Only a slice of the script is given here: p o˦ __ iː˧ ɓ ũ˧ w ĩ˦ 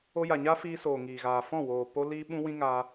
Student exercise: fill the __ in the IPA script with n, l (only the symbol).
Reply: l